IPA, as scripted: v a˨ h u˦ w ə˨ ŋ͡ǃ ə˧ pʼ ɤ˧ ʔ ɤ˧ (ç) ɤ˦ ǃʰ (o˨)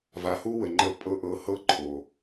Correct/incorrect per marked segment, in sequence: incorrect, correct

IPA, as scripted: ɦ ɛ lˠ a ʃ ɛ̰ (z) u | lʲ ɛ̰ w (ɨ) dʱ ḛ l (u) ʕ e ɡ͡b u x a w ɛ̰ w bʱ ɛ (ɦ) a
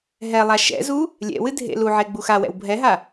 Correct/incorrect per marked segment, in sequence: correct, correct, correct, correct

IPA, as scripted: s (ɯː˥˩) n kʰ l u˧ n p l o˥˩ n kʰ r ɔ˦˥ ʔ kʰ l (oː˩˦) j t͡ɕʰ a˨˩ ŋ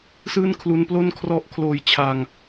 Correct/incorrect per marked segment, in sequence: correct, incorrect

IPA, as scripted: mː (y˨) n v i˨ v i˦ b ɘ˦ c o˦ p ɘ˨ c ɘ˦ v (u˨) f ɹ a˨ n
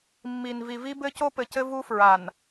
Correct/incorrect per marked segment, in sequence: incorrect, incorrect

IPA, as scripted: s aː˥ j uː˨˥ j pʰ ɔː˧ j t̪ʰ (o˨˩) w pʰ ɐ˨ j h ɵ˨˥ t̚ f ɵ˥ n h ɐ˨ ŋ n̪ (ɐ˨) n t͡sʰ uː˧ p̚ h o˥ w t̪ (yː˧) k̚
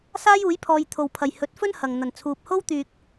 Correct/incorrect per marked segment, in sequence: incorrect, correct, incorrect

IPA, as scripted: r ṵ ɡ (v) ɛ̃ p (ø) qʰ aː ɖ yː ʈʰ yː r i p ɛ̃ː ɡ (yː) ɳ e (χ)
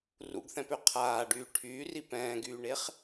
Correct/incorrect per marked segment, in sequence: incorrect, correct, correct, correct

